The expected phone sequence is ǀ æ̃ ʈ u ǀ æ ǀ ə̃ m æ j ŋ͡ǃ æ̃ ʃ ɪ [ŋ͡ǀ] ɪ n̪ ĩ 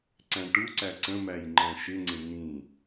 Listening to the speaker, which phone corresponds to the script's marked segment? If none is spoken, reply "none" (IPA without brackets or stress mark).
ŋ͡ǀ